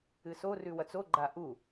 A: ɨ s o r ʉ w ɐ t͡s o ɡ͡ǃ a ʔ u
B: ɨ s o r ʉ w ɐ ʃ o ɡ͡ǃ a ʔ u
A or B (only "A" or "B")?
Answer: A